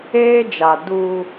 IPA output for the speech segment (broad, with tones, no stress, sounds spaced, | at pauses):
eː˦ d͡ʒ a˨ d u˦